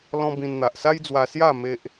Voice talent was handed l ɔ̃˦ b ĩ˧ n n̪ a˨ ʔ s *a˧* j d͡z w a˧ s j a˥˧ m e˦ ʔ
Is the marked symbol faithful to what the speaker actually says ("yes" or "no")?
no